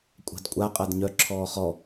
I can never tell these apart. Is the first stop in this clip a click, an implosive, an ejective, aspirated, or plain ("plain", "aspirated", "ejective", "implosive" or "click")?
ejective